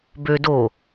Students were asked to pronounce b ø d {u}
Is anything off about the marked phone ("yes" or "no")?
yes